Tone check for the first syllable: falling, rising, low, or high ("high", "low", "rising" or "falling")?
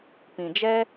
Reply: low